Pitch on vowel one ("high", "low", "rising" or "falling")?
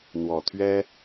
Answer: low